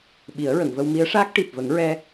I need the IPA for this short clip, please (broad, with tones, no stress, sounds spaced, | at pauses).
ɓ i˨˩˦ ə̯ ɹ ə˨˩˨ ŋ v ə˧ w m i˧˥ ə̯ ʂ aː˦˥ k̚ ʈ i˨˩ p̚ v ə˨˩˦ ŋ ɹ ɛ˧